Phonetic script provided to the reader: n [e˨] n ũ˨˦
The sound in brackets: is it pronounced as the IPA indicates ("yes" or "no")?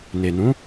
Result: yes